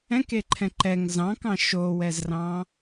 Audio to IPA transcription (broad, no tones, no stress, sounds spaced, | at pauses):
ɛ̃ k e ǃʰ ɛ̃ ǃ ɛ ŋ z ɑ̃ k ɑ̃ ʃ o w ɛ z r ɑ̃